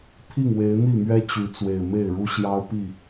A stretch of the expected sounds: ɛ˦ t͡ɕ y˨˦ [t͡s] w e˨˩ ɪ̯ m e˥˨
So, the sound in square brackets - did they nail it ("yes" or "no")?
yes